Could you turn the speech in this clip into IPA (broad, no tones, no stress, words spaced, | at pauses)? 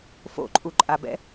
fo̰ǃʼuǃʼabɛ̰